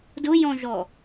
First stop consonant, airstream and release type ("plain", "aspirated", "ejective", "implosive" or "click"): plain